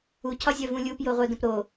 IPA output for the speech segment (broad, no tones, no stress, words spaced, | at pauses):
u cʰɒzʲœvũlʲup joʁʷœdə̃pɾo